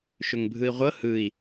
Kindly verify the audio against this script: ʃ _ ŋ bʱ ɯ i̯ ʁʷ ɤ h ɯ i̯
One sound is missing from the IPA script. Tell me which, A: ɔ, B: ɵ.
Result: B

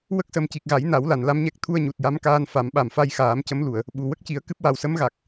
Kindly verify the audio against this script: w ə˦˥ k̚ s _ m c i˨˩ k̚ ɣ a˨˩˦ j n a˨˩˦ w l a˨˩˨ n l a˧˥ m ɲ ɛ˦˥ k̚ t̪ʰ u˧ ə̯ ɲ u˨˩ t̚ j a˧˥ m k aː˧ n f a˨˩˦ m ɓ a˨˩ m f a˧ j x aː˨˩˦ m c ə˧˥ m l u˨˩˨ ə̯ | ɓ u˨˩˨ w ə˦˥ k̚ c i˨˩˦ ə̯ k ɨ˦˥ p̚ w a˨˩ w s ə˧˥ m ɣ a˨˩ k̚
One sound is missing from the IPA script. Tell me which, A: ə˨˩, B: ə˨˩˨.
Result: A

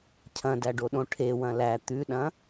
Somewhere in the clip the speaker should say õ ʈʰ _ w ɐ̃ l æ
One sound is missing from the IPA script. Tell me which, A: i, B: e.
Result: B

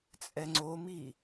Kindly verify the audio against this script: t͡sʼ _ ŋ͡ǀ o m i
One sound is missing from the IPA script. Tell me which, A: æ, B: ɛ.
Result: B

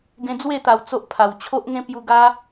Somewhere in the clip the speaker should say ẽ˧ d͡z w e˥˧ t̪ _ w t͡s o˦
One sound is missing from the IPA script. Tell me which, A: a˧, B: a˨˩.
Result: B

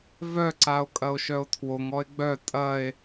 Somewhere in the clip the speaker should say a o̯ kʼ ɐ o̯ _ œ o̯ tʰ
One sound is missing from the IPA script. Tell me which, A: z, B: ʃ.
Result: B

